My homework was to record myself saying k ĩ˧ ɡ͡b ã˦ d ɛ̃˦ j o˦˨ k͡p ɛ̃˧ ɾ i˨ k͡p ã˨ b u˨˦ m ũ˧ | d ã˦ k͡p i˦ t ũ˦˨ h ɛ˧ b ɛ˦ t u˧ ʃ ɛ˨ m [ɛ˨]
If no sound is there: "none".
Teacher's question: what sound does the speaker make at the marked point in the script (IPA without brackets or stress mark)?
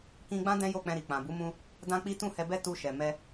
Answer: ɛ˧